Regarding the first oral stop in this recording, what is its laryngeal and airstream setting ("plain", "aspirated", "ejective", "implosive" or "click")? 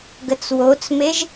plain